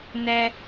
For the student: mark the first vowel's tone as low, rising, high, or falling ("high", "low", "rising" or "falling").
high